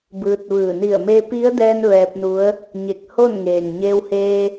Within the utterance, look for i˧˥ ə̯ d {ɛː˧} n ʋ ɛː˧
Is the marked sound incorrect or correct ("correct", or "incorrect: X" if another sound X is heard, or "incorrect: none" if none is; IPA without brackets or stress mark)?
correct